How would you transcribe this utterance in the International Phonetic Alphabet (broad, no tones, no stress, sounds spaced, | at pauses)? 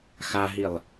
x a ɦ i lˠ